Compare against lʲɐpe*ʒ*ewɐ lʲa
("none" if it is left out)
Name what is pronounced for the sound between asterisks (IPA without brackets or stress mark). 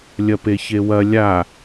ç